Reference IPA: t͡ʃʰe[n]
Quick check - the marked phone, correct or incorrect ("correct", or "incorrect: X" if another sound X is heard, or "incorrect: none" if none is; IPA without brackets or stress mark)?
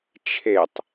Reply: incorrect: tˤ